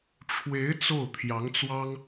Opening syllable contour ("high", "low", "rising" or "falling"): rising